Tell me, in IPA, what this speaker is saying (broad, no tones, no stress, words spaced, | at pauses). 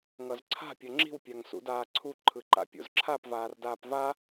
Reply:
ŋʌzǀʰa̤ pʲʌŋ͡ǁi̤w pʲaŋsṵdaːǀʰu ǃʰɯǃa̰pʲo̰zǁʰap vaːrdaːpva